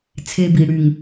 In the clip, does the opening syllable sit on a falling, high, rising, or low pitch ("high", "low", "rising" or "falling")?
high